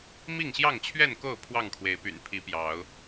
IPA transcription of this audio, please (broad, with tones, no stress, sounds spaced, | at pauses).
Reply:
m i˥˨ ŋ ɕ j ɑ˥˨ ŋ t͡ɕʰ ɥ ɛ˥˨ n k o˥˨ ʊ̯ pʰ w ɑ˥˨ ŋ kʰ w e˨˦ ɪ̯ p y̰˨˩ n pʰ i˨˦ p j ɑ˨˦ ʊ̯